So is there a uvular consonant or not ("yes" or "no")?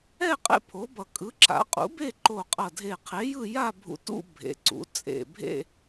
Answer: yes